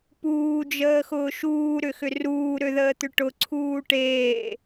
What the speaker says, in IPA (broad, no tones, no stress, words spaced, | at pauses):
puːd͡ʒəːxʊː ʃuːɾʏxʏ ruːɾøðəːt̪ʏ ʈʊǀʰuː ʈeː